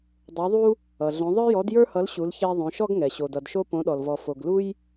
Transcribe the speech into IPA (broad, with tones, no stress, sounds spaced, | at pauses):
dˤ o˨˦ ðˤ u˦ | ʌ˩ ɮ õ˨˦ ðˤ ə˞˦ j ɔ˨˦ d j ə˞˦ h ʌ˨˦ l ɕ u˨˦ l ç ɛ˦ ðˤ õ˨˦ ʃ ɔ˦ ɡ ŋ ɛ˩ ɕ o˩ d ʌ˩ d ʃ o˦ p õ˨˦ ɗ ɔ˩ l v ɔ˩ f o˩ ɡ l u˦ j